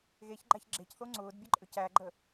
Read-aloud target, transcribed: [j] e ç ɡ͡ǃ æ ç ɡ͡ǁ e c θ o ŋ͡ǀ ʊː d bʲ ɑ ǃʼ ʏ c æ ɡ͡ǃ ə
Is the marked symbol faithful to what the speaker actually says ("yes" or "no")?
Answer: no